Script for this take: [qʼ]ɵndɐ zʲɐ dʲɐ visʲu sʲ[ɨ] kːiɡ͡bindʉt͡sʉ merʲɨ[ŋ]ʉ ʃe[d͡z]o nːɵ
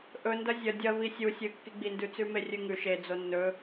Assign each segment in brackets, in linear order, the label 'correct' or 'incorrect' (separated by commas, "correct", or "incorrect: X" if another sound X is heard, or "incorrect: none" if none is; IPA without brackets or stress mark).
incorrect: ʔ, correct, correct, correct